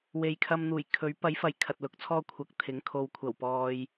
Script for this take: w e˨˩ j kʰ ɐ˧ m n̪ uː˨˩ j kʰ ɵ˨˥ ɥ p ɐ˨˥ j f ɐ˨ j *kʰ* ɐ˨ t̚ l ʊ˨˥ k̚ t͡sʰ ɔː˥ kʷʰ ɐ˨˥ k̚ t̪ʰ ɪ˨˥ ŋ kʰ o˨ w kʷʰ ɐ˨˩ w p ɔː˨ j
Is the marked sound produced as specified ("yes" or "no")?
yes